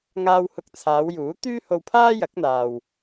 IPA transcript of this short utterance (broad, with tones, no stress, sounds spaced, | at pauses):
ŋ aː˧ w h ʊ˧ k̚ t͡sʰ aː˨˧ w j uː˨˥ t̪ yː˥ h o˧ w pʰ aː˥ j ɐ˨˥ k̚ n̪ aː˨ w